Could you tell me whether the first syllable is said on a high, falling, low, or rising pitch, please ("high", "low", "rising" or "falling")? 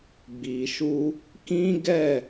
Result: low